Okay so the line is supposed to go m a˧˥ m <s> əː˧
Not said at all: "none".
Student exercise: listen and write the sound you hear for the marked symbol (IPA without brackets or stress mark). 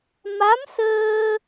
s